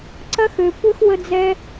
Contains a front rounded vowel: yes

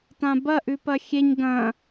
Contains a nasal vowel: yes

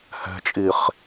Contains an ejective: yes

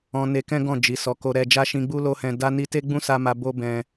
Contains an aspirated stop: no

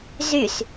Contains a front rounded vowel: yes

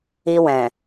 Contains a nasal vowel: yes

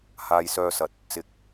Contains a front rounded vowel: yes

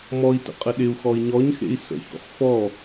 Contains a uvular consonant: yes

